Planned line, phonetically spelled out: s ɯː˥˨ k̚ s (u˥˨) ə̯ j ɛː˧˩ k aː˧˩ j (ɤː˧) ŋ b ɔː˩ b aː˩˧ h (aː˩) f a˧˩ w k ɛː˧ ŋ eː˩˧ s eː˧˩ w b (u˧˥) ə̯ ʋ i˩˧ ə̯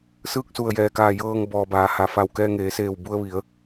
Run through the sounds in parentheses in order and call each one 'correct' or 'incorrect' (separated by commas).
incorrect, correct, incorrect, incorrect